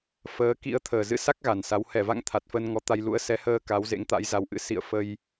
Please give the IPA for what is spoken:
fəː˨˦ kḭ˧˥ə̯ t̪ʰəː˨˩zɨ̰˧˥sa˦˥k̚ ɣa˨˩nsa˨˦w hɛ˧˩va̰˧˨ŋ t̪ʰa˨˩t̚fəː˧n ŋɔ˨˦t̪a˧j lṵ˧˥ə̯sɛ˨˦həː˧ ka˨˦wzḛ˧˥ŋt̪a̰˧˥j za˨˦wʔɨ̰˧˥ sḭ˧˨ə̯ fə˧j

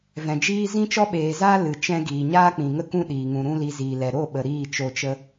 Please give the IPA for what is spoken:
vɛ̃˨d͡ʒiː˦ zĩ˦t͡ʃɔ˦ɓeː˨zaː˦ lɨ˨ t͡ʃɛ̃˧ ɡiː˨ɲaː˦k͡pĩ˨ŋə˦ kũ˦ ɗiː˨ŋũ˧ ɾũ˦li˧ziː˨lɛ˨ ɾo˦˨ɓə˨ ɾiː˦˨t͡ʃo˧t͡ʃə˦

